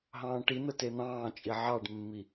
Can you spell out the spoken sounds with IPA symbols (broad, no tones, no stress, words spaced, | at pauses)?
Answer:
ɦɑ̃ːʈin̪ə ten̪ɑ̃ːt͡ʃʼi ʕɑɖmːi